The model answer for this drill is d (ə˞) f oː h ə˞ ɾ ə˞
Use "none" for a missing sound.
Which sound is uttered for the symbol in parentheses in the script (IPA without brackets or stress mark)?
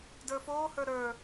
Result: ə˞